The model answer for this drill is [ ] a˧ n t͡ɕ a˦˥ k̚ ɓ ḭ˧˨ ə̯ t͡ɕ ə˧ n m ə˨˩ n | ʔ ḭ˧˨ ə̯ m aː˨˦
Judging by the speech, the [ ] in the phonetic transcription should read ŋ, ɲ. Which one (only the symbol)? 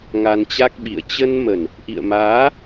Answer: ŋ